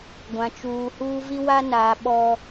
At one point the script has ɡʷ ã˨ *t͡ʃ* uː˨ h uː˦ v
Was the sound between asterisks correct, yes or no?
yes